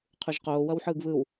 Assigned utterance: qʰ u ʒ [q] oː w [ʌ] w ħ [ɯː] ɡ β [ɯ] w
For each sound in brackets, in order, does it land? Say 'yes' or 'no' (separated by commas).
yes, yes, yes, yes